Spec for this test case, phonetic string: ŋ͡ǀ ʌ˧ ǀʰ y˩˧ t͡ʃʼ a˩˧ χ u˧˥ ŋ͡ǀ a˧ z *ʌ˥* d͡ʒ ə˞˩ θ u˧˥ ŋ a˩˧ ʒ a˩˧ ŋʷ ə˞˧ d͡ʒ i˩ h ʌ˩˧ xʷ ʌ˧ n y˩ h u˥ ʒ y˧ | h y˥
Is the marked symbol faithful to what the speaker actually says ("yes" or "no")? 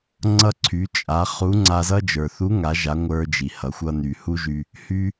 yes